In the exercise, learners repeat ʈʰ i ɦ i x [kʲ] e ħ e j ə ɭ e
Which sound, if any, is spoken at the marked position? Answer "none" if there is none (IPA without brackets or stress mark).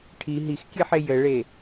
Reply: kʲ